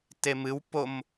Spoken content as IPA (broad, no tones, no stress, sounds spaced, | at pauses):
t e m ɨ w p o m